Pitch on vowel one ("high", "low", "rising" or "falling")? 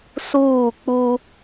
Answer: falling